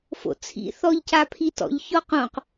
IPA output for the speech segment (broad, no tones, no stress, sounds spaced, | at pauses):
f o̰ t͡sʰ ḭ θ ɔ ʎ c a pʰ i t ɔ̰ ʎ ç ɔ q õ q